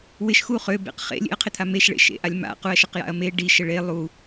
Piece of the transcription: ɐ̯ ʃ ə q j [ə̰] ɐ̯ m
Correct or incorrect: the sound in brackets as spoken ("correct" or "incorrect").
incorrect